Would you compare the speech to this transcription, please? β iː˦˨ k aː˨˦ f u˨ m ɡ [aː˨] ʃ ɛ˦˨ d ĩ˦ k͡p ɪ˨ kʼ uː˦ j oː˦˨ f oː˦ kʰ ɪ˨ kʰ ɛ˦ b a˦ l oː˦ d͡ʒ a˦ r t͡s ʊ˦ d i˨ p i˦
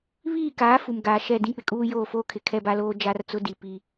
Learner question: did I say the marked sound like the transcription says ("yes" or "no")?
yes